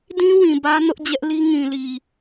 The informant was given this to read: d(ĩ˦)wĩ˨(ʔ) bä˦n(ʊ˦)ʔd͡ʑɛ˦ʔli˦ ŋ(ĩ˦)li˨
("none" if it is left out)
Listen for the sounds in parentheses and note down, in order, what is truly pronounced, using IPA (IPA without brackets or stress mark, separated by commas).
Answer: ĩ˦, none, ʊ˦, ĩ˨